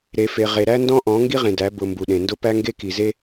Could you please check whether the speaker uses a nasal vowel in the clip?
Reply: yes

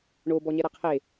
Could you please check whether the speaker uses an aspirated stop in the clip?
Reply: yes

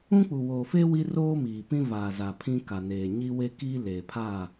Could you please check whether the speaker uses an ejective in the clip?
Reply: no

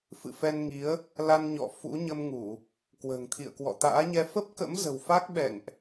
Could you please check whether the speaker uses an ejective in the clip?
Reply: no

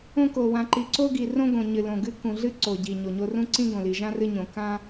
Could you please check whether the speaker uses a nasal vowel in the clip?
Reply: yes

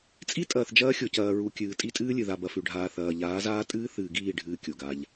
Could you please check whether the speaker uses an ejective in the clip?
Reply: yes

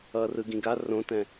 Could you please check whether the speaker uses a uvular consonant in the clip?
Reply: no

